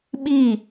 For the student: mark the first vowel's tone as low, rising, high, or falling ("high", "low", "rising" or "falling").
falling